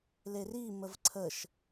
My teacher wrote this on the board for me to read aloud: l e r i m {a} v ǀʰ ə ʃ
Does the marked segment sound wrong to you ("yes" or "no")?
yes